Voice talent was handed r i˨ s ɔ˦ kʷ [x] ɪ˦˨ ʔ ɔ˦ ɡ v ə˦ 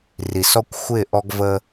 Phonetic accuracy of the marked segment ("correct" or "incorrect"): incorrect